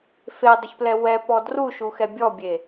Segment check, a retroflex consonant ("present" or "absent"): absent